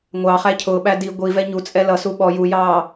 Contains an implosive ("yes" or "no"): yes